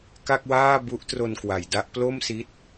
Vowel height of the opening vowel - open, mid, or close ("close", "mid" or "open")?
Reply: open